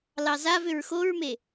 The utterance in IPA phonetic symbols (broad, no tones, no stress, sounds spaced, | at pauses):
l ɑ z a v ʏ ɹ x o ɹ m e